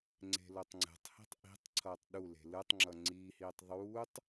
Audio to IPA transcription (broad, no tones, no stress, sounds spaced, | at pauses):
ŋ͡ǀ e̤ l o tˤ ŋ͡ǀ ɛ̤ tˤ h i̤ tˤ ʔ i̤ tˤ ǀʰ ʌː tˤ ɗ u l e̤ l ɯ tˤ ŋ͡ǁ ʌ ŋ͡ǀ iː h iː tˤ ðˤ uː tˤ